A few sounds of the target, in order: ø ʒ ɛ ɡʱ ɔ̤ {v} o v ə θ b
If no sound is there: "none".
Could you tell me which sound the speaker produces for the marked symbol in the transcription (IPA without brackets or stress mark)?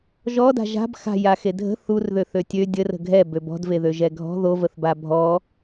ð